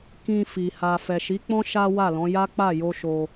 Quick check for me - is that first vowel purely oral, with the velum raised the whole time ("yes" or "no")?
no